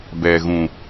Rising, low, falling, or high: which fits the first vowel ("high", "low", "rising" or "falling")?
low